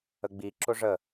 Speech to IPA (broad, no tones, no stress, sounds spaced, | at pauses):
ə ɡ͡b i ǁ ʊ ʐ ə